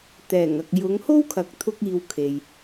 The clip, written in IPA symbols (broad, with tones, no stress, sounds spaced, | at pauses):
t̪ ɛː˨˩ ŋ ɐ˨ k̚ j ʊ˨˧ ŋ h o˥ w kʰ ɐ˨˥ k̚ t̪ʰ ʊ˥ k̚ iː˧ w kʰ e˨ j